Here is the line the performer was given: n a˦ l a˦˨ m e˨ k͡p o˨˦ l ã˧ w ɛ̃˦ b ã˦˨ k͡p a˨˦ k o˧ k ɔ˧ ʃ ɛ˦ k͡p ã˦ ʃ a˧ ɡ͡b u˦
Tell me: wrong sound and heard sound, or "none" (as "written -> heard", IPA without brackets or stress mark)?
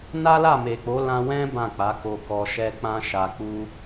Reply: ɡ͡b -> k͡p